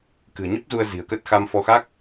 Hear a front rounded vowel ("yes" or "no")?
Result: no